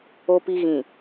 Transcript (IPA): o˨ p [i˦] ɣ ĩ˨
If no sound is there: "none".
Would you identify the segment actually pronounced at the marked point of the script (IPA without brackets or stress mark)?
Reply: i˨